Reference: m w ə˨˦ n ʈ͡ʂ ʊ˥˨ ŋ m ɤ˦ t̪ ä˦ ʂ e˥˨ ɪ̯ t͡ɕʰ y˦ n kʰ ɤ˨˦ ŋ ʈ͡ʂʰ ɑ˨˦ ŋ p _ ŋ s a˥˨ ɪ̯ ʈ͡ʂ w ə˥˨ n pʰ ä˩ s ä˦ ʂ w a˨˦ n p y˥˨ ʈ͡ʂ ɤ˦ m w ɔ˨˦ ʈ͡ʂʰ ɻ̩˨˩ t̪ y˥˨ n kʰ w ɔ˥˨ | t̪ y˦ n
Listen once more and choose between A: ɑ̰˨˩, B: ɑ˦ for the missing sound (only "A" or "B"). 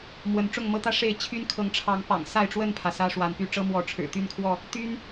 A